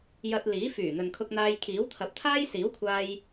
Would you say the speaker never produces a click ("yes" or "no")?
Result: yes